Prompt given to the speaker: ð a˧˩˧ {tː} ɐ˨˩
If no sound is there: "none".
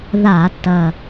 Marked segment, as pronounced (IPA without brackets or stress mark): tː